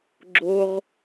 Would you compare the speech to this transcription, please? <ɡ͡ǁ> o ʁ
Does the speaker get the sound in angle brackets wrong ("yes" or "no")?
no